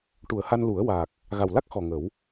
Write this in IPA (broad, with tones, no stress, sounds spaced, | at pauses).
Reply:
ʈ u˨˩˨ ə̯ h a˧ n l u˨˩˦ ə̯ w a˨˩ k̚ | ɣ a˨˩ w l a˦˥ k̚ x ɔ˨˩ ŋ ə˨˩˦ w